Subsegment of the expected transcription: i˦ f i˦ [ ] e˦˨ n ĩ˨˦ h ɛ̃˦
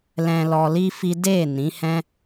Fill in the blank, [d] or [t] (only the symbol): d